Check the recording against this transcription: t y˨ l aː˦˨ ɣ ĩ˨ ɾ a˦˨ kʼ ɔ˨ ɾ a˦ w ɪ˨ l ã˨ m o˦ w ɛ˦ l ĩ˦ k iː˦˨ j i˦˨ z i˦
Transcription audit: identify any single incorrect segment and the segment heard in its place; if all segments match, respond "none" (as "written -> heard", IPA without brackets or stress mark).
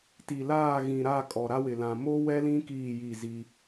y˨ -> i˨